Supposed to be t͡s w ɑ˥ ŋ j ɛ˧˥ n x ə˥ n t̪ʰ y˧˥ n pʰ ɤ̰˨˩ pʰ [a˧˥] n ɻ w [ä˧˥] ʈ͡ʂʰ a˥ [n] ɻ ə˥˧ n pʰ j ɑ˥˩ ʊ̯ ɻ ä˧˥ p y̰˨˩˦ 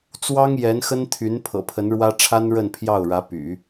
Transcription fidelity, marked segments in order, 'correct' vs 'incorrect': incorrect: ə˧˥, incorrect: ä˥, correct

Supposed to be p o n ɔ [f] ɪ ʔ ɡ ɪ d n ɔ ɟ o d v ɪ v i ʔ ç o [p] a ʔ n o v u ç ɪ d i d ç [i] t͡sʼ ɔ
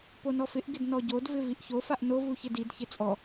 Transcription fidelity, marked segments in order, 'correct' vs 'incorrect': correct, incorrect: f, incorrect: ɪ

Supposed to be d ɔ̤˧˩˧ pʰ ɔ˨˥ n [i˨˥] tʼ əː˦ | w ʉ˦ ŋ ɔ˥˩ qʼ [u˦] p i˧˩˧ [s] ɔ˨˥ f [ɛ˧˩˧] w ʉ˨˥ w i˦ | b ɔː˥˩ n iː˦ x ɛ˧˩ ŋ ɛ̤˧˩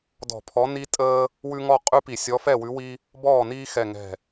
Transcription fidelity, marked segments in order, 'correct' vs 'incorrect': incorrect: i˦, incorrect: ʉ˦, incorrect: sʲ, incorrect: ɛ˥˩

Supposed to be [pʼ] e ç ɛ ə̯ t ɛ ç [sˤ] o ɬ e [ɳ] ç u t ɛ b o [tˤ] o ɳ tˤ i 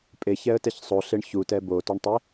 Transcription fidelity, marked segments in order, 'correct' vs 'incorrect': correct, correct, correct, incorrect: t

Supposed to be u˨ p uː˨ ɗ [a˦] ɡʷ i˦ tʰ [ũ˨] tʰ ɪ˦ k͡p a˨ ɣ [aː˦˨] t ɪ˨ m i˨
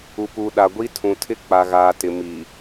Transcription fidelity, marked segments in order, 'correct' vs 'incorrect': incorrect: a˨, correct, incorrect: aː˨

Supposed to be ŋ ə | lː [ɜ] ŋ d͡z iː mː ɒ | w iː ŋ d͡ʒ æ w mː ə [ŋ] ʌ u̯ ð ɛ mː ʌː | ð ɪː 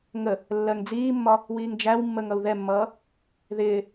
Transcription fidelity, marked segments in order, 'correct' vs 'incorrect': correct, correct

